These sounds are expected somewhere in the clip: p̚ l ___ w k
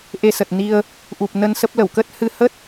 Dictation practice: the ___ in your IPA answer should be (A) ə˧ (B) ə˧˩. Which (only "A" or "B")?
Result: B